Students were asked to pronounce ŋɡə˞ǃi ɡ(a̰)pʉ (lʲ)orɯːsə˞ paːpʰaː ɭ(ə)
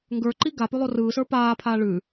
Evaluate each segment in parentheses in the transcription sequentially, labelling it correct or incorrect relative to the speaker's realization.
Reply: incorrect: a, incorrect: lˠ, incorrect: ʉ

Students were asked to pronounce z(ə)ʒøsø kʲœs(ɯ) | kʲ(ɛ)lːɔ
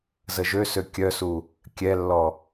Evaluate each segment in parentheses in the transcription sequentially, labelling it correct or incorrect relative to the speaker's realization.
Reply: correct, incorrect: u, correct

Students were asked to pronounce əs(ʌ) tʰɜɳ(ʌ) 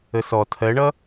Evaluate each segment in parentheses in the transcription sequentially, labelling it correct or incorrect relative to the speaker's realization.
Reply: incorrect: ɔ, correct

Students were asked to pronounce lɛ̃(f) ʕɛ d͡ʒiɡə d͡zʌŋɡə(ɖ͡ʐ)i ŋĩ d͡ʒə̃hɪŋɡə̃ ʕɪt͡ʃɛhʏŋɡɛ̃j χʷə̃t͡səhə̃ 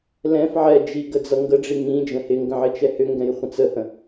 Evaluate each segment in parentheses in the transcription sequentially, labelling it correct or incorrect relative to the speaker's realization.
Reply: correct, correct

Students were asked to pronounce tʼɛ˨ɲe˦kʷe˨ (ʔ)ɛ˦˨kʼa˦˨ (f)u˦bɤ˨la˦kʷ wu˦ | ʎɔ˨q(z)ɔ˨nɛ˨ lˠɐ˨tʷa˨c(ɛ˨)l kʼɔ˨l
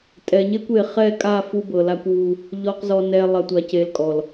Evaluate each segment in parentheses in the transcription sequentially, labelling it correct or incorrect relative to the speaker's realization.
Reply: incorrect: χ, correct, correct, incorrect: e˨

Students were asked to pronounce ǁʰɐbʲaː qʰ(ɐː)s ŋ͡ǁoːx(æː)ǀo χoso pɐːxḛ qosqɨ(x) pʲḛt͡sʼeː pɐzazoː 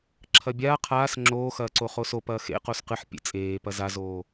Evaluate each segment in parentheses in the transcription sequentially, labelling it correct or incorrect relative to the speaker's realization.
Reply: incorrect: aː, incorrect: ɐː, incorrect: ħ

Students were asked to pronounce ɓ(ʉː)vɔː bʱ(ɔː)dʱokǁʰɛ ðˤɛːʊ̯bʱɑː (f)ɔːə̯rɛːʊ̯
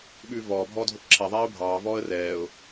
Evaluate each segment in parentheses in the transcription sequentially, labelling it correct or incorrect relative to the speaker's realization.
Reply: correct, correct, incorrect: v

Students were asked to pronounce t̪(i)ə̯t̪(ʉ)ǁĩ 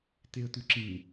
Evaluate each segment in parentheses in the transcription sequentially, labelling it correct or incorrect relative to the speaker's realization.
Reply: incorrect: e, correct

